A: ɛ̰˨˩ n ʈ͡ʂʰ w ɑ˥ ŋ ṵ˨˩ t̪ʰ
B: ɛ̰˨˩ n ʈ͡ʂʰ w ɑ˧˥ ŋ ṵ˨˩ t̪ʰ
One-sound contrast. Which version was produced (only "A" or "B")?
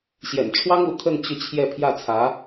A